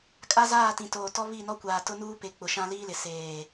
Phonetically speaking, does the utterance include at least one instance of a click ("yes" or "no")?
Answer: no